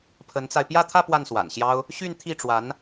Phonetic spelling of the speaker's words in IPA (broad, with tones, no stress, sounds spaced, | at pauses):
pʰ ə˧˥ n t͡s a˧ ɪ̯ p j ä˥˧ t̪ʰ ä˥˧ p w a˥˩ n s w a̰˨˩ n ɕ j ɑ˥ ʊ̯ | ɕ y˥˧ n t̪ʰ i˥˩ ʈ͡ʂ w a˧˥ n